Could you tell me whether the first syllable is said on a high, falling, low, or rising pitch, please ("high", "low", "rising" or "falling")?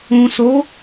low